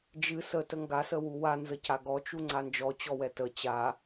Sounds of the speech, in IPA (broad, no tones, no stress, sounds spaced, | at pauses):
d͡ʒ ɨ s ə t ə ŋ ɡ a s ə w u w a n z ə c a ɡ ɔ t͡ʃ u ŋ͡ǀ a n d͡ʒ ɔ t͡ɕ ɔ w ɛ t ə t͡ɕ a